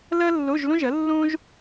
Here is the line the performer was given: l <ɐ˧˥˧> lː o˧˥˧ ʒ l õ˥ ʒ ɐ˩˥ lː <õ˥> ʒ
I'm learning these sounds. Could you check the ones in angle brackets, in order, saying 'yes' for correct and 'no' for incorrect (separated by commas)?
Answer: no, yes